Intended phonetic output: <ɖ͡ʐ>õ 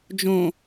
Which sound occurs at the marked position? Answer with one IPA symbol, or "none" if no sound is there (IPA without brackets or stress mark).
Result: d͡ʒ